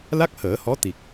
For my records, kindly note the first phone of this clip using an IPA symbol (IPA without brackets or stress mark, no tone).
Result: l